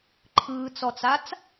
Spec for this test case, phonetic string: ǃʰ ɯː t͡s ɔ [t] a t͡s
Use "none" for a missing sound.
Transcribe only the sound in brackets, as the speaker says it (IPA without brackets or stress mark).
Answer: t͡s